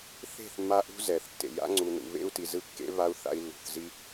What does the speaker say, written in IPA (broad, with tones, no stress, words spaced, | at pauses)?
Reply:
θe̤˦˨θ mːa˦ʔṳ˦ zɛ˨θtːḛ˨ ja̰˦ŋ͡ǀu˨nṵ˨ βḛ˦u̯ti˨zɯ˦ kːḛ˦βa˦u̯ θa̰˦i̯lːṳ˨θzi˦